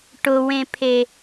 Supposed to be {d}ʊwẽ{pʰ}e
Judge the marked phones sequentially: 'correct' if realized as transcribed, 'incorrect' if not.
incorrect, correct

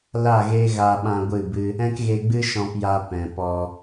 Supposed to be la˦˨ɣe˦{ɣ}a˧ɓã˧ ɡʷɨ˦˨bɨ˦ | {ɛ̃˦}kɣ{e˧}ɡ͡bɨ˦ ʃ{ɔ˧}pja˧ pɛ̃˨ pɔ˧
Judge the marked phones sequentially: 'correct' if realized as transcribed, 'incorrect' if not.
correct, correct, correct, incorrect

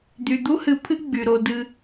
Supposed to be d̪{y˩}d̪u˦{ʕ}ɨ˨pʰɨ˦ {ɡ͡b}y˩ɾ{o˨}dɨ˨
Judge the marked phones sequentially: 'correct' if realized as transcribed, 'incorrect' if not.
correct, incorrect, correct, correct

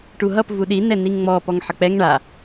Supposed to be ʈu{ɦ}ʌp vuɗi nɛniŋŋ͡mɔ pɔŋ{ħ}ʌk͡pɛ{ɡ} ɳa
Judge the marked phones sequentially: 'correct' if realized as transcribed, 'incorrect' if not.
correct, correct, incorrect

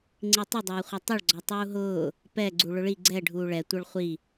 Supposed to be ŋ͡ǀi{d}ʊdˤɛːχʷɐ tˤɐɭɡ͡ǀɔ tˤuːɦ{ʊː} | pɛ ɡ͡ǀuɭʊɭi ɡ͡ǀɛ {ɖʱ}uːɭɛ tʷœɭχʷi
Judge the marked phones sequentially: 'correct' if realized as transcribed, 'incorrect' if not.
incorrect, correct, correct

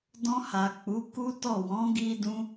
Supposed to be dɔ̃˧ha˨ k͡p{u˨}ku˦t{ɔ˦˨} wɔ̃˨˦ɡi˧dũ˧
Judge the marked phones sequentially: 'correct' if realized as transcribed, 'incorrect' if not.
incorrect, correct

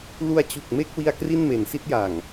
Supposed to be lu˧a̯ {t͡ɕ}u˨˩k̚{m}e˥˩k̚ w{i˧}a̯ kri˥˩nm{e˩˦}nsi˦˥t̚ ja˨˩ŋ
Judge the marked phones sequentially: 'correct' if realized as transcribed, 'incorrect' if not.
correct, correct, correct, correct

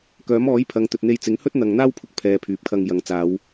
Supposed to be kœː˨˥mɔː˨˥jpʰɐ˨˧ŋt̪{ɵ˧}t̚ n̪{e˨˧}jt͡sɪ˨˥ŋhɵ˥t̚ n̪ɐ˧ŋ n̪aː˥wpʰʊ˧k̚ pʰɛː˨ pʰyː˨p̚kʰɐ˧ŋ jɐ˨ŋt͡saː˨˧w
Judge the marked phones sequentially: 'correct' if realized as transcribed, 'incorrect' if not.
incorrect, incorrect

